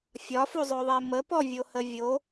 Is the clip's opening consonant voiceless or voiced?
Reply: voiceless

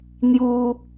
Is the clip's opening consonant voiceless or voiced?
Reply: voiced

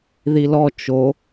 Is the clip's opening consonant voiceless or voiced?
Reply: voiced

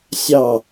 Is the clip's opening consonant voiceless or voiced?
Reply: voiceless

